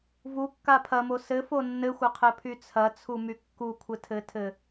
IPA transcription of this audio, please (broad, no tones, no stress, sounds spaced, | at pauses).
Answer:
v u kː a pʰ ɐ m o s ɘ f o nː ɘ xʷ ɐ qʰ ɘ pʰ y t͡sʰ ɐ t͡sʰ u m y kː u kʷʰ ɘ tʰ ɘ tʰ ɘ